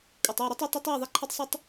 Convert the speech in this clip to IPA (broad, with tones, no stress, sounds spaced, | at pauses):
kʷʼ ɨ˨ tˤ ʉ˦˨ ɾ ɵ˦ tˤ a˦ tˤ e˦ tˤ w ɨ˦˨ ðˤ e˦ ǃʰ a˦ tˤ sˤ ʉ˦ tˤ